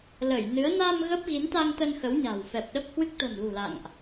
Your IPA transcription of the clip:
l ə˧˩ j n ɨ˨˦ ə̯ n a˧ m ɣ ə˦˥ p̚ ɣ i˨˦ n t̪ a˧ ŋ t̪ ə˧ n x ə˨˦ w ɲ a̤˨˩ w f ɛ˨˩ p̚ ɗ ə˦˥ p̚ h w ɨ˦˥ k̚ t̪ ə̤˨˩ m l ṳ˨˩ l a̰˧˨ ŋ ʔ

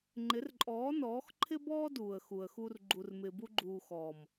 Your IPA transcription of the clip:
ŋ͡ǃ ɪ˨˦ r ǃʼ ɔː˨˦ n ɔː˨˦ x ǃʰ ɪ˦ b ɔː˦ d uː˨ ə̯ x u˨ ə̯ x u˧ r ɡ͡ǃ u˨ r m ɪː˨ b u˧ ɡ͡ǃ uː˨ x ɔː˨ m

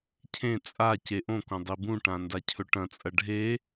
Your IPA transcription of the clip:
cʰ ẽ t͡sʼ a c e ʔ õ k õ dˤ i b ũ ʈ ã n d a cʰ ɵ ʈ ɐ̃ t͡sʼ ɐ ɖʱ e

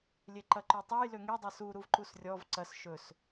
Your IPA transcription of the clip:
lʲ e ǃ ɐ ǃ ø tˤ e j l ø ŋ e dˤ ʌ s u ɾ u v ǃ u s rʲ ɔ v ǀ ɐ s ʃ ɵ s

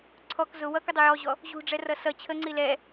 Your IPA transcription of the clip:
ǀʰ ɔ k z ʊ w ʌ k ʊ dˤ ʊ j ɔ ʑ ɔ | ʑ ṳ ɖ͡ʐ ɛ r ʌ s ʌ t͡ɕʰ ə ŋ͡ǀ i l ɛ

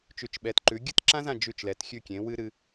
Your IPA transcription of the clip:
t͡ʃ ʉ˩˥ t͡ʃ ɓ ɛ˩˥ t ǃ ʉ˩˥ ɡʲ ɨ˥˩ t ǁ ã˥ z ã˥˩ d͡ʒ ʉ˥˩ t͡ʃ l ɛ˩˥ t xʲ ʉ˥˩ kʲ ẽ˩˥ w ɨ˥ ɾ ɨ˧

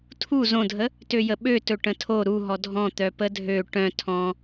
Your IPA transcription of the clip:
tʰ u z õ dʱ ə | t ø j ə ɓ ø t ɵ ʈ ə̃ tʰ o ɾ u ɦ ɔ dʱ ɔ̃ t̪ œ p ə dʱ ø ʈ œ̃ tʰ ɔ̃

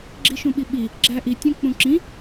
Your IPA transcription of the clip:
ɡ͡ǁ i ʃ ũ ɓ i ɓ i | ɡ͡ǁ æ ʔ i tʲ õ k͡p ũ ǁ ĩ

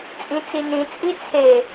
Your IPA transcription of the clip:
t͡sʼ ĩ t͡s i n ĩ t͡sʼ i t͡sʰ e

